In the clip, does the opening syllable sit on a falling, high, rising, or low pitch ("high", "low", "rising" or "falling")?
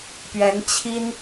rising